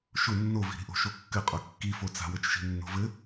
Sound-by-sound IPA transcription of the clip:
ʃ ʊ nː o v i̤ ɾ i̤ ʔ o̤ ʃ o kː ɘ qʼ o kː i f o t͡s a̤ w ɘ t͡ʃ ʃ i̤ nː o̤ v ɘ

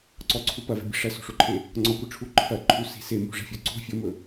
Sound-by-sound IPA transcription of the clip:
ǀ ɔ ǀʰ u p ɐ v e̤ bʲ e̤ ʂ ɐ s o̤ ʂ o ǃʰ e | ŋ͡ǀ ɔ kʷ ɯ ʈ͡ʂʰ u ǃʰ ɐ ǃʰ u s i̤ s e m ṳ ʐ ɛ̤ fʲ o ǀ o̤ fʲ o m ɵ

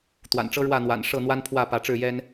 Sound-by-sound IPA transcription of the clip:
t̪ w a̰˨˩ n ʈ͡ʂ ɤ˦ ɻ w ä˥˨ n̪ w a̰˨˩ n ʂ ɤ˥˨ n̪ w a˦ n pʰ w ä˥˨ p ä˨˦ ʈ͡ʂ ɻ̩˥˨ j ɛ˦ n

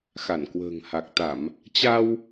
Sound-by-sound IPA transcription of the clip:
x a˧˩ n k w ə̤ː˨˩ ŋ h a˨˩ k̚ t̪ a˧˩˨ m | t͡ɕ a˧ w

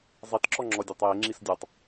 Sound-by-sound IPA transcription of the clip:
zˤ i t ǁ ɔ ŋ͡ǁ ɔ dʲ ɔ tˤ j e ŋ͡ǁ i s dʲ ɔ tˤ

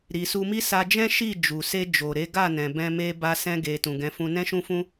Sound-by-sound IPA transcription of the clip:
ɾ i˨ s u˧ m i˦ s a˧ d͡ʒ ɛ̃˦ ʃ i˦˨ d͡ʒ u˨ s e˧ d͡ʒ o˨ ɾ e˨˦ ɡ a˦˨ n ɛ̃˨ b ɛ̃˧ m e˧ b a˧ s ɛ̃˧ ɡ e˨ t ũ˨ ɡ ɛ̃˨˦ f ũ˧ n ɛ̃˦ ʃ ũ˦ f ũ˦

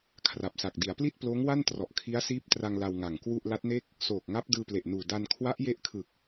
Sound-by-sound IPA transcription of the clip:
kʰ r a˨˩ p̚ s a˨˩ k̚ d i˩˦ a̯ p l i˥˩ t̚ p l oː˦˥ ŋ w a˥˩ n t r ɔ˨˩ ʔ kʰ i˦˥ a̯ s iː˦˥ p̚ t r a˧ ŋ l a˧ w ŋ a˨˩ ŋ k w u˥˩ ʔ l a˦˥ t̚ n e˥˩ k̚ | s oː˨˩ k̚ ŋ a˦˥ p̚ d ɯː˧ p l e˨˩ ʔ n uː˨˩ d a˧ n kʰ w a˦˥ ʔ j e˦˥ ʔ kʰ ɯ˨˩ k̚

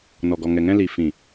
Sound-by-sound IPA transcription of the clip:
n ɔ˨ ɡ ɔ˨ ŋ ɛ˨ ŋ ɛ̃˧ l i˨ f ĩ˨

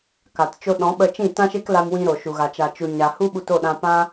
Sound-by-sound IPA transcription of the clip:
k a˨ t t͡ʃ o˧ ɗ ɔ̃˨˦ ɓ ə˧ t͡ʃ ĩ˦˨ t ã˦ ʃ e˦ k l a˧ m w ĩ˧ ɾ o˨ ʃ u˨ ɣ a˨ t͡ʃ a˨ t͡ʃ u˨ ɲ a˨ h u˦ ɓ u˧ t o˦˨ ɗ ã˧ p ã˦

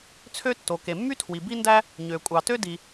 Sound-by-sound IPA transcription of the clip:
t͡sʰ ø˥ tː o˩ k e˩ mː y˥ tʰ w i˩ b i˥ n d æ˥ | ɲ ø˩ kʷʼ ɑ˩ t ø˥ d i˩

